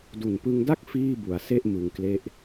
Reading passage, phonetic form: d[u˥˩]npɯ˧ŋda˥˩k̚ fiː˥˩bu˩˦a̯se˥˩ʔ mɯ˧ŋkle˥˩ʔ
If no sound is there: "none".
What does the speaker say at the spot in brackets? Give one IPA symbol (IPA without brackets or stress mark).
u˨˩